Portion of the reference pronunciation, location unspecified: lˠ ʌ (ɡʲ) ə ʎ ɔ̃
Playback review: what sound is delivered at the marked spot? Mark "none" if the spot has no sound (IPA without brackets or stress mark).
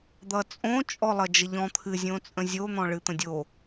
d͡ʒ